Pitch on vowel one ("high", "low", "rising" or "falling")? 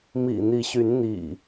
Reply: low